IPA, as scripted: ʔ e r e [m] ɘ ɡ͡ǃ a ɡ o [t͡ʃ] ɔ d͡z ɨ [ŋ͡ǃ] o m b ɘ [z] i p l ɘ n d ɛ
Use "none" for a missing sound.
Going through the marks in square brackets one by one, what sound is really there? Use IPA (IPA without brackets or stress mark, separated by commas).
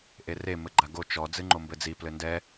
m, t͡ʃ, ŋ͡ǃ, d͡z